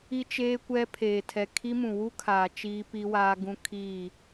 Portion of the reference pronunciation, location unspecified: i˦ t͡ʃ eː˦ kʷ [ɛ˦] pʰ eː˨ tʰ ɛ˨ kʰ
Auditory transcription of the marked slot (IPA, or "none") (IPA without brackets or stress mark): ɛ˦